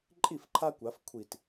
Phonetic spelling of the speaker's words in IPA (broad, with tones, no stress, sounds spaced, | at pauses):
ǃʼ i˥˩ f ǃʰ a˦ kʷ a˨˥ f kʷʰ i˧˩ t